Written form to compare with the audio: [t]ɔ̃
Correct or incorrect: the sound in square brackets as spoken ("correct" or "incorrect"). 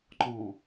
incorrect